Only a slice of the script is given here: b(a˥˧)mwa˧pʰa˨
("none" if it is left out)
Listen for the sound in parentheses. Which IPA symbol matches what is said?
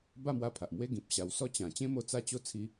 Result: a˥˧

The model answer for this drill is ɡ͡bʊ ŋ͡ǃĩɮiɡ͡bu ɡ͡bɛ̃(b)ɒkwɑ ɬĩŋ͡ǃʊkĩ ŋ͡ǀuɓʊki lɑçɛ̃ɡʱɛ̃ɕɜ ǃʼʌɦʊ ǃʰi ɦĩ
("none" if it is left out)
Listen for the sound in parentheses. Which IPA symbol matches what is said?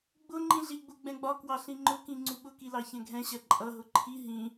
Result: ɡ͡b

